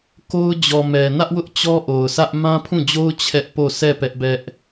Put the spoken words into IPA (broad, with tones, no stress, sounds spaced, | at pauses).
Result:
k o˦ ʊ̯ d͡ʑ ɔ˨ m ɛ˨ n ä˦ ʔ w ʊ˦ ʔ t͡ɕ ɔ˦ ʔ o˨ ʊ̯ sʰ ä˦ ʔ m ã˦ pʰ ũ˦˨ d͡ʑ o˦ ʊ̯ t͡ɕʰ ɛ˦ ʔ p o˦˨ s ɛ˦˨ p ɛ˦ ʔ b ɛ˦ ʔ